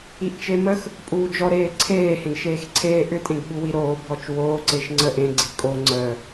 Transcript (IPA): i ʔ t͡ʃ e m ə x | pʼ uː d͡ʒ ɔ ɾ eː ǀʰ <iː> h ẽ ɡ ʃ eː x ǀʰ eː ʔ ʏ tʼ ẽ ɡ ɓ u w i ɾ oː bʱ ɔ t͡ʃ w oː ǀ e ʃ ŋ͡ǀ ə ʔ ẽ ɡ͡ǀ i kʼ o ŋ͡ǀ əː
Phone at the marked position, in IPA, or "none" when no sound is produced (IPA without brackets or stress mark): eː